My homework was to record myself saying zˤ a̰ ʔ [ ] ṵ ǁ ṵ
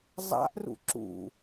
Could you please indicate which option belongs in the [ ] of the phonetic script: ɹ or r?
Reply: r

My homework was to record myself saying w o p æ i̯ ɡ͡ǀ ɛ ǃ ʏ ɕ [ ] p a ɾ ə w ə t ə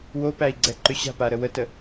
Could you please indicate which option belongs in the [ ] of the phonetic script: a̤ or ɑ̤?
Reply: a̤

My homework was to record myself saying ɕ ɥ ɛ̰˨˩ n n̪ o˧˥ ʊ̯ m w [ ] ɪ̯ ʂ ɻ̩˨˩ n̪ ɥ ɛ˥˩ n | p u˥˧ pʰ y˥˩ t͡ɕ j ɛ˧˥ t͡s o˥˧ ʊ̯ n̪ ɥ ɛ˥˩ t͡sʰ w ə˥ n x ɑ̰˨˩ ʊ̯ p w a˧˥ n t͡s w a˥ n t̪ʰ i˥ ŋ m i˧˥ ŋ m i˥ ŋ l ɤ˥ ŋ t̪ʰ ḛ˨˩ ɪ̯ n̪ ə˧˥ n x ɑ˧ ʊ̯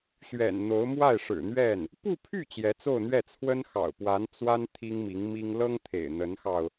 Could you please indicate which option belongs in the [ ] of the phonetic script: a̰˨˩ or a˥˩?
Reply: a˥˩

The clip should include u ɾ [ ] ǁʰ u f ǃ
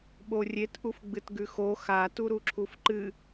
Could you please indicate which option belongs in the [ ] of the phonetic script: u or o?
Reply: u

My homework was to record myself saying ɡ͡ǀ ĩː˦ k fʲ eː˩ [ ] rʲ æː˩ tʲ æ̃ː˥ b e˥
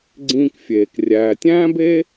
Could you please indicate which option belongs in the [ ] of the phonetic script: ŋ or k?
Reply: k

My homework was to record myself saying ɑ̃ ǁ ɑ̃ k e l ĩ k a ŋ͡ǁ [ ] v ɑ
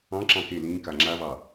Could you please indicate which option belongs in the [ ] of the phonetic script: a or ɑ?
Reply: a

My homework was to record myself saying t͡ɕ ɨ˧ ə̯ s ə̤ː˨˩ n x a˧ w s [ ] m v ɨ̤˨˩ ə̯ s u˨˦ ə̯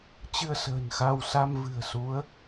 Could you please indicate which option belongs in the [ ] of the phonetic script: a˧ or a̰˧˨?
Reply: a˧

